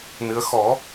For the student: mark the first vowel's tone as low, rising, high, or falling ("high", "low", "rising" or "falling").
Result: rising